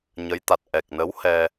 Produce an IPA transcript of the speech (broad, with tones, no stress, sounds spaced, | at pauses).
ɲ ə˨˦ j t̪ a˨˩ t̚ ʔ ɛ˨˩ k̚ n ə˨˦ w h ɛ˧